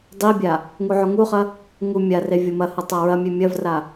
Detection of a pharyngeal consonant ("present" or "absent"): present